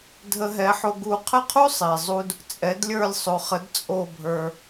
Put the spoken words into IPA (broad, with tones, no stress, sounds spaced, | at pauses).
dʱ ə˧ ɦ ɛ˩˥ ħ o˧ ɡ u˧ qʰ ə˥˩ qʰ u˥ sˤ e˩ zˤ u˥ d | t͡sʼ ɛ˩˥ d lʲ ə˞˥˩ lʲ sˤ o˩ χ ə˩˥ d t͡sʼ o˥˩ bʱ ə˞˧